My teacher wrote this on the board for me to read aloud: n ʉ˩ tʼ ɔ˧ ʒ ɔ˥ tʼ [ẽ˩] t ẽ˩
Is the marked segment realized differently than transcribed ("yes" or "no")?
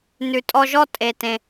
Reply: yes